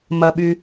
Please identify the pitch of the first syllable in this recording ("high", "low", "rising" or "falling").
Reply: low